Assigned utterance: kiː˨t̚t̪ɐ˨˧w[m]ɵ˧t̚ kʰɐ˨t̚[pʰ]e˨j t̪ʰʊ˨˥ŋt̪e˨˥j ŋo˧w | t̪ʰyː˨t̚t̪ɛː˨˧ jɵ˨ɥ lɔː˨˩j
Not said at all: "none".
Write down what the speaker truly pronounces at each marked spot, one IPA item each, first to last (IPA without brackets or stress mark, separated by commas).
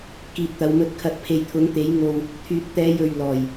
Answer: m, pʰ